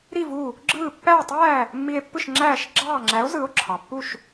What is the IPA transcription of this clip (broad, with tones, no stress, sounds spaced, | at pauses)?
ɾ i˥˩ v u˥˩ | ɡ͡ǁ ɯː˥˩ pː æː˥˩ tˤ æː˥˩ | mː i˧ e̯ pː ɯ˥˩ ʃ ŋ͡ǁ æː˥˩ ʃ ɡ͡ǁ ɑː˥˩ ŋ͡ǁ æ˩˥ o̯ z ɯ˩˥ o̯ ǁʰ ɑ˩ pː u˥˩ ʃ